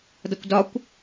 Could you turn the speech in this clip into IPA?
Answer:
d ʌ kʷ d ɒ kʷ

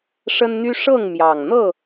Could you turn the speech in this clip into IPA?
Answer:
ʂ ə˦ n n̪ y˦ ʂ ɤ˥˨ ŋ m j ɑ˨˩ ŋ n̪ ɤ˥˨

